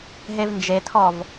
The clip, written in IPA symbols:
ɦevnd͡ʒetʰɔv

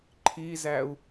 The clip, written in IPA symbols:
ǃʰizæu̯

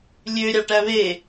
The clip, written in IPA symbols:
lʲø ɾʲɑʈæβe

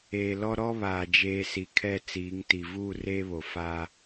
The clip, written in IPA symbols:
eː˨lɔ˦ ɾɔ˦βaː˨d͡ʒeː˨ si˨kʰɛ˦˨ t͡siː˨˦ŋti˨ vuː˦˨r eː˦βo˨ fa˦

